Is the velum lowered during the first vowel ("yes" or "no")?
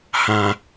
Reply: yes